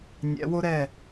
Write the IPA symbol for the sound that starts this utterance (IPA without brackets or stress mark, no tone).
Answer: nʲ